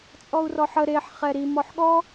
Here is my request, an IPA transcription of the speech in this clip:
t͡sʼ ɔ u̯ r ɔ ħ ə ɾ e ħ χ ɛ ɾ i m ɔ ħ ɠ ɔ

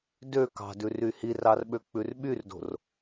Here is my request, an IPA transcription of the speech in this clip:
d ø k ɑ̤ d ʉ r y h i r ɑ r ɓ ø k͡p ʉ r ɓ y r d o̤ r

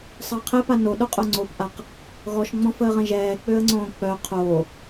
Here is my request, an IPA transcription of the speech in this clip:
sˤ əː qʰ ɛ p a n o ɗ o qʼ o ŋ͡ǀ o p ʔ a q | ɣ ɔ ʃ ŋ͡m ɔ̃ f əː ʁ ə̃ ʒ ɛː k͡p ø ə̯ ŋ͡ǀ õː k͡p œ qʰ oː

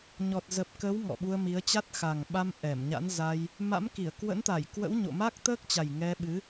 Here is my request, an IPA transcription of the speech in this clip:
ɲ ɔ˨˩ t̚ z ə˨˩ p̚ k ə˨˦ w ŋ ɔ̰˧˨ ɓ u˧ ə̯ m i˨˦ ə̯ t͡ɕ a˦˥ t̚ x a˨˩ ŋ ɓ a˧ m ʔ ɛ˧˩ m ɲ a̰˧˥ n z a˧ j | m a̰˧˥ m k i˧˩ ə̯ k w ə̰˧˥ n t̪ a˧˩ j k w ə̰˧˥ w ɲ o̰˧˨ m a˦˥ k̚ t̪ əː˦˥ k̚ t͡ɕ a˨˩ j ŋ ɛ˧ ɓ ɨ˨˦

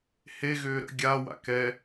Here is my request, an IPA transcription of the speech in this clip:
h e ɣ ʏː ɾ ə̰ ɡʲ a w a̰ k ɛ

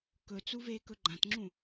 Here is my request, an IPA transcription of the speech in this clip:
k ɵ t͡s u v eː k ɵ ɡ͡ǃ ã t ŋ͡ǁ ũ

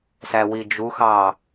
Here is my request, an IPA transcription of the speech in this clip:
s æ w i d͡ʒ u x ɑː

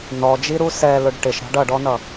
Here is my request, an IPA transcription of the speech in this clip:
n ɔ d͡ʒ i ɾ u s ɛ l ʊ ɖ ʈ ɪ ʃ ɾ ɑ̤ ɖ ʌ ɖ ɔ n ʌ

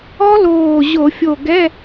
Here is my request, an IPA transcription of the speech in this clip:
ɔ˦˥ l oː˧˩ ʑ o˧˩˧ fʲ o˧˩ ɡ ɛ˧˥˧

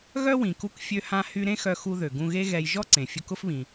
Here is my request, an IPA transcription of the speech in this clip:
ɣ œ˥ w ĩ˩ k u˧ k fʲ ø˥ h ã˥ h y˥ ɾ ẽ˥ x œ˧ x u˧ ð ø˩ ɡ ũ˧ ɣ e˥ ɣ ɛ˧ j ʒ ɔ˥ ǀ ẽ˩ fʲ ʊ˧ k ʊ˥ f β ĩ˩

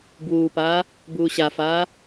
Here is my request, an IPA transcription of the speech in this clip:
b w uː p aː | b uː ɕ a f aː

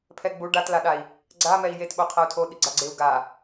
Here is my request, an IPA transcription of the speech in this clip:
pʰ ɛ ɡ͡b u ɖ a t l a ɗ a i̯ | ɡ͡ǀ a m ɛ i̯ j e t ɓ o qʰ ɛ u̯ tʰ o ɗ i ɡ͡ǀ a ɡ͡ǀ e u̯ ɡ a

